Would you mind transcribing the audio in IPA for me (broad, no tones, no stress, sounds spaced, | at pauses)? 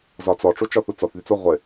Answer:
z ɒ t͡s ɔ ʈ͡ʂ u t͡ʃ ɔ θ u t͡s ɔ θ ð y t͡s o ʁʷ ɪ